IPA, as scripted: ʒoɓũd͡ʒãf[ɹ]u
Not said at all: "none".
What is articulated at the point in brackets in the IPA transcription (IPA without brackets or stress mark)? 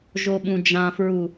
ɹ